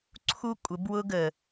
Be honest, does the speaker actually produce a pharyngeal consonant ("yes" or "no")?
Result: no